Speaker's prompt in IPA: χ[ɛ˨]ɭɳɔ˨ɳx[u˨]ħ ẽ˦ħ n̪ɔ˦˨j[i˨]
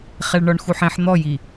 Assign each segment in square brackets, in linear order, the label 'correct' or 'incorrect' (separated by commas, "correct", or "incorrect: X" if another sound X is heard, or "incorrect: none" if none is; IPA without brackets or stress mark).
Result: correct, correct, correct